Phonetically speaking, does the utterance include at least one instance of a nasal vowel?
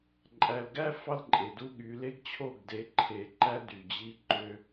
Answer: no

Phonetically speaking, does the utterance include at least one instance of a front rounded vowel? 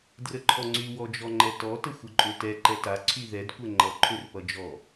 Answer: yes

